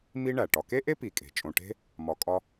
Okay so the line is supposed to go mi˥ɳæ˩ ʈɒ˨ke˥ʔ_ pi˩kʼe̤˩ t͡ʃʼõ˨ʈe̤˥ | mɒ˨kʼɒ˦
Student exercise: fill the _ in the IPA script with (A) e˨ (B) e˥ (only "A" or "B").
B